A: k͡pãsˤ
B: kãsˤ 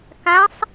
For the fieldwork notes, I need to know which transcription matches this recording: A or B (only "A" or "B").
B